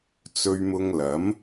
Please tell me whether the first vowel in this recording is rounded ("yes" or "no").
yes